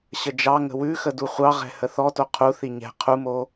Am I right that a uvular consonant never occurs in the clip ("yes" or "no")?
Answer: no